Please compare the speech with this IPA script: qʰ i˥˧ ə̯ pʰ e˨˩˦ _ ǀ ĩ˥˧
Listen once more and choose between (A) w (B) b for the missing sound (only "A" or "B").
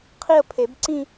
B